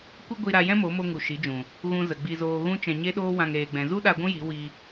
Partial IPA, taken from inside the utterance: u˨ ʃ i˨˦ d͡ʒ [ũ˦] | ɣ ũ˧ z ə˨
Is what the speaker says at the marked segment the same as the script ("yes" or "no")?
no